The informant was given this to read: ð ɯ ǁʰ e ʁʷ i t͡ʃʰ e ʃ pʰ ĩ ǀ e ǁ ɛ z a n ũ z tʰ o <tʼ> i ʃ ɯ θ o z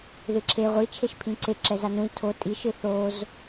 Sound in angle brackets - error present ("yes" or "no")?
no